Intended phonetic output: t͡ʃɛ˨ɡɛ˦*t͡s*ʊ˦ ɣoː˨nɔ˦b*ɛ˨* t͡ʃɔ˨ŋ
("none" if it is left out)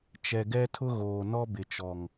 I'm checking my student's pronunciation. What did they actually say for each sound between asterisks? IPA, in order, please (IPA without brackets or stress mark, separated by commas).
tʰ, ɪ˨